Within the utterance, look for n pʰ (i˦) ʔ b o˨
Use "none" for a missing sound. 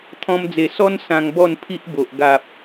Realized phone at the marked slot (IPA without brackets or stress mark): i˦